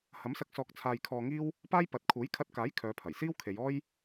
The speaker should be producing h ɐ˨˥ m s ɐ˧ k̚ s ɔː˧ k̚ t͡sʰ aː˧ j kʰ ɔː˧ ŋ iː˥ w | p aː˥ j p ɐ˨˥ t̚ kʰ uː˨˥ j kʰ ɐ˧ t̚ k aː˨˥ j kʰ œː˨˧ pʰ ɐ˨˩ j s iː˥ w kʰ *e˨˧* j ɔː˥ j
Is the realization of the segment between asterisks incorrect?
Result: no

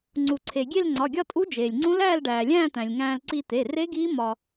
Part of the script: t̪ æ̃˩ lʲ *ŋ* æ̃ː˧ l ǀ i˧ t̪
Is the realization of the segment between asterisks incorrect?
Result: no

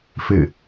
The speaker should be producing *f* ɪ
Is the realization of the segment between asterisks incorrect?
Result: no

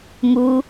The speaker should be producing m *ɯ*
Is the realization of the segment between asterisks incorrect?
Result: yes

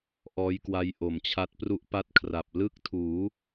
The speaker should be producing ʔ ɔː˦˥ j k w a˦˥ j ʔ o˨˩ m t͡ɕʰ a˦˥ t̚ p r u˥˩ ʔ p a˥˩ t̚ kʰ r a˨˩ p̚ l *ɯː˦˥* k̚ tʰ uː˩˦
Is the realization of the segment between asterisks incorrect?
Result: yes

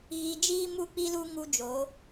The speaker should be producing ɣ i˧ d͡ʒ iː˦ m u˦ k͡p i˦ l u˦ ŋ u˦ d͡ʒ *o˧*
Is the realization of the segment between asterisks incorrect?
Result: yes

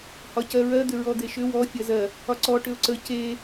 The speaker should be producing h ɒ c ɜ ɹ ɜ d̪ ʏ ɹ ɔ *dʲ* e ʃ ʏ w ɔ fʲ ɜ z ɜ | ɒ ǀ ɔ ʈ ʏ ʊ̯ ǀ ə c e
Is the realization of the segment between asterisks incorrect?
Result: yes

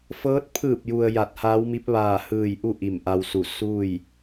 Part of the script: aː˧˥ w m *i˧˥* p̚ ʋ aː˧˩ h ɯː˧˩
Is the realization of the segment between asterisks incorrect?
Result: no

